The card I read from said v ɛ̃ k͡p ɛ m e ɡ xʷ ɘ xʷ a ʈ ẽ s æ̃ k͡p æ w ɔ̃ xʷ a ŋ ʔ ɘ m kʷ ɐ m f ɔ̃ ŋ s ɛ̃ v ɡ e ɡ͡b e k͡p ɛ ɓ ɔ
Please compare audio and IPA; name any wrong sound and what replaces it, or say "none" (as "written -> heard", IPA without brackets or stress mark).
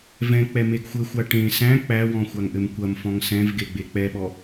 none